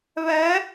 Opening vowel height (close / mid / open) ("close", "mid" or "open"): mid